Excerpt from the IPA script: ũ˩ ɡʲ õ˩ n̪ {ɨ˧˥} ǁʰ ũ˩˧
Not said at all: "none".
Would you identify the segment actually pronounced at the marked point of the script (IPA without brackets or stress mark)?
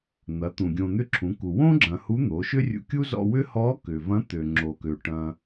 ʏ˧˥